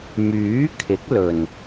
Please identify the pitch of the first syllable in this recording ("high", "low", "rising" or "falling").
rising